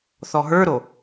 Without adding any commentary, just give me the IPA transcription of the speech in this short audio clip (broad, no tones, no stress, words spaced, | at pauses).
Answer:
θɔɦə˞ɾo